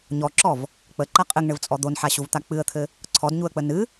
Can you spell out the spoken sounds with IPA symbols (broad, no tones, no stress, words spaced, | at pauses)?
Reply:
ɲɔǁɔv | k͡pəǃa qʼɘŋɳɘvt͡sʼɔ d̪onħaɕuvt̪a k͡pɨə̯t̪ʰɘ | ǀʰɔdɲuə̯k͡pə nɨ